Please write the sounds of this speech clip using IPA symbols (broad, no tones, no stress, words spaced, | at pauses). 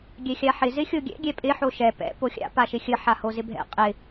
ɡʲɛxʲaħɪ zɪxʲoɡʲɛ̰ ɡʲɛpʼɪ ħoʃɛ pɛ̰ poxʲa̰ paʃɪxʲə ħahozɪbʱɛ̰ qʼɪ